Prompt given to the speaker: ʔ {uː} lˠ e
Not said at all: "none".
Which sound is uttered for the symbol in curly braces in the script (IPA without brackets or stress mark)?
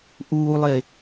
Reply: uː